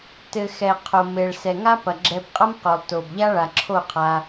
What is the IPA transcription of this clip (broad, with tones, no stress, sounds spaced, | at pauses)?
t ɘ˨ x ɛ˨ qʰ o˨ m e˨ ɭ s ɛ˨ ŋ a˦ p ɐ˨ ɡ͡ǁ ɛ˧ b qʼ ɐ˦ m q o˨ lˠ t o˨ b ʎ a˦ ɭ a˨ ǁʰ o˦˨ qʰ a˧